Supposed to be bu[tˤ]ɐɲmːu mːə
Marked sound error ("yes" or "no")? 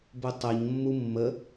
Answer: no